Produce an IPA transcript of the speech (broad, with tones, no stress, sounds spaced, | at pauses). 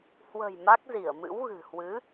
h w ə̤˨˩ j m a˦˥ k̚ z i˧˩ ə̯ m ɨ̰˧˥ w ɣ ɨ̤˨˩ h w ɨ˨˦